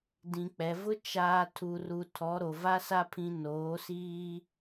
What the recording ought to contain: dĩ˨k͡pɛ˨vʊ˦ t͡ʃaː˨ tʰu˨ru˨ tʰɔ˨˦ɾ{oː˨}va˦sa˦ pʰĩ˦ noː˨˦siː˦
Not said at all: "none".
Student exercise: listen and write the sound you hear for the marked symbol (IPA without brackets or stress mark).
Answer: o˨